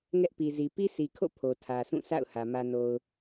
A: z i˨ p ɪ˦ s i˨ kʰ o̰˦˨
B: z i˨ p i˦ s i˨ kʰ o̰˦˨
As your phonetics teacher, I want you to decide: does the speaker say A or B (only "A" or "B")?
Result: B